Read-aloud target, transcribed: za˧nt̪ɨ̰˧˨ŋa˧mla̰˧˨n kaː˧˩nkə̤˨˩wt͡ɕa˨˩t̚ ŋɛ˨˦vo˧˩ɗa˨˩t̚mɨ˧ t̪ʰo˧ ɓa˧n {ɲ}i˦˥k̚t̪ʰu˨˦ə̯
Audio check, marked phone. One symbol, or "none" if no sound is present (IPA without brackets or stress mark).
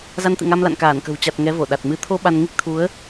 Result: ŋ